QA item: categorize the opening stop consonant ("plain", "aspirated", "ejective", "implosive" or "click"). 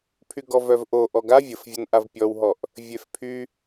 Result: aspirated